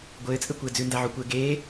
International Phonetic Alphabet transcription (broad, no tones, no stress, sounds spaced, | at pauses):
ɡʷ ɘː t͡sʼ ɘ kʷ ɘː d͡z ʉ n d a ʕ o kʷ ɘː ɡ eː